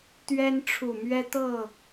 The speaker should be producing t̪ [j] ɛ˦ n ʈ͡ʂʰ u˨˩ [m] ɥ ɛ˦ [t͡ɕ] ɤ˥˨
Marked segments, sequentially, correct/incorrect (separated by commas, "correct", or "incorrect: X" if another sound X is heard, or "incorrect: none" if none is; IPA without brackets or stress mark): incorrect: ɥ, correct, incorrect: t̪